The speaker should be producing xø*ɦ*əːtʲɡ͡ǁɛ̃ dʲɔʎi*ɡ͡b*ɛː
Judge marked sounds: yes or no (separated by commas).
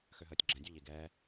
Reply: yes, no